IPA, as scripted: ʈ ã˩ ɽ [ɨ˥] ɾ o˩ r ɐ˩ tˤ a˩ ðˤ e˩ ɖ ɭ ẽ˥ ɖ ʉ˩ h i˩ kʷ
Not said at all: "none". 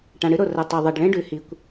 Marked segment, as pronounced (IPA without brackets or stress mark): ɨ˥